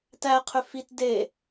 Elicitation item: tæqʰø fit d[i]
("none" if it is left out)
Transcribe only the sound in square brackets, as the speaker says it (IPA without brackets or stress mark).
e